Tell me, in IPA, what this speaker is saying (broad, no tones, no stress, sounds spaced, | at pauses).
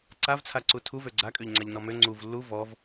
ǀ a v t͡sʰ a ǀ u tʰ u v ø ɡ͡ǀ a kʼ ø ʎ ŋ͡ǀ a ʎ n ɔ m ø ŋ͡ǀ u v lː u v ɔ v